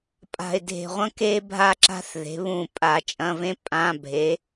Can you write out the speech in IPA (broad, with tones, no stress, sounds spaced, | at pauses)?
pʼ a̤˨˩ ɪ̯ dʱ e̤˨˩ ʁʷ ɐ̃˥ k e˥ bʱ a˥ ǁ a̤˥ θ ð e̤˨˥ β ũ˦˨ pʼ a˧˩˧ t͡ʃʼ ɐ̃˧˥˧ v ẽ˥ pʼ ã˧˥˧ bʱ e˨˥